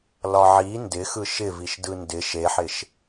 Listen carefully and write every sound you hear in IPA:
l ɒ ʕ i n d ɪ x ɯ ʃ ɪ v i ʃ d ɯ n d ɪ ʃ e ħ ɪ ʃ

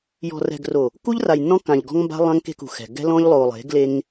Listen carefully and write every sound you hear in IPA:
j ɔ̤˨ r ɛ̤˨ ɡ r o˨ | k u˦ ʎ r a˨ j nː ɔ̃˦ k ã˨ ʎ ɡ ɔ̤˦ ŋ m b a̤˦ lˠ ã˦ ŋ k e̤˦ k ṳ˨ x ɛ̤˨ ɡ ɛ̤˦ l ɔ̃˦ ʎ lˠ o˨ lˠ e̤˨˦ ɡ l e˦ ŋ

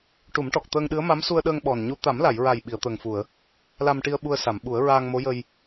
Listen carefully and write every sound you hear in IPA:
ʈ u˨˩˦ m ʈ ɔ˨˩ k̚ t̪ əː˧ ŋ ɗ ɨ˧˥ ə̯ m a˧˥ m s u˧ ə̯ ɗ əː˧ ŋ ɓ ɔ˨˩ n ɲ u˧ t̪ a˨˩˦ m l a˨˩˨ j ɹ a˨˩ j ɓ i˨˩˨ ə̯ t̪ əː˨˩ ŋ f u˨˩˨ ə̯ | l a˧ m ʈ i˧ ə̯ ɓ u˧ ə̯ s a˨˩˨ m ɓ u˨˩˦ ə̯ ɹ aː˧ ŋ m o˧˥ j ə˧ j

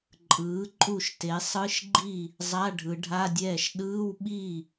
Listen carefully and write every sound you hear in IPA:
ǃʼ ɯː˩˥ ǃʼ u˥˩ ʃ t e˩˥ sˤ ɯ˧˥˧ ʃ ɡ͡ǃ i˥˩ | zˤ a˧˥˧ ɖʱ ɯ˩˧ ɖʱ a˧˥˧ dʲ ɛː˥˩ ʃ ɗ ɯː˧˥˧ w ɓ i˥˩

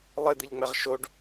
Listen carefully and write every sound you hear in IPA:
lˠ ɘ d̪ ɨ ʎ ŋ͡m ɛ ʁ ʃ o ɖ

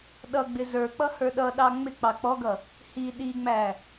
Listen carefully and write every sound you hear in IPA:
ɗ ʌ ɡ͡b ɪ z ə˞ k͡p ʌ h ə˞ ɗ ʌ ɗ ɑ ŋ͡m ɪ k͡p ɑ k͡p ɔ ɡ ʌ | h i ɗ i ŋ͡m æ

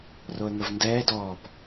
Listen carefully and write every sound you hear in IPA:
r o ə̯ ŋ ə v n d ɛː d ɔː p

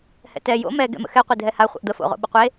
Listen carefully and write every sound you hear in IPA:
h ɛ̰ t ɛ j o̰ m ɛ ɡ ɛ̰ m ə̰ x ɛ qʷ e dʱ ɛ h a χʷ ə̰ ʔ d̪ ə f o̰ ʁ o̰ ɓ ə qʷ e

